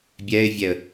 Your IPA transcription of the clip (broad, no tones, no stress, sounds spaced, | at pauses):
bʲ ɛː ɪ̯ vʲ ɛ ə̯